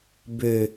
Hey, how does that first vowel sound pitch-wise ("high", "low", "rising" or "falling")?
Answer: low